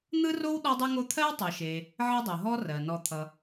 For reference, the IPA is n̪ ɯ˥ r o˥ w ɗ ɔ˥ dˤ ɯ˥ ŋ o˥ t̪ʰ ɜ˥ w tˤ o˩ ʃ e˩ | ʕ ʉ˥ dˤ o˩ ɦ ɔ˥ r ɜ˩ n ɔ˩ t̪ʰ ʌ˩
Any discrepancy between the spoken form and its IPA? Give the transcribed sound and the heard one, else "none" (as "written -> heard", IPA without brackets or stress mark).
ʉ˥ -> ɘ˥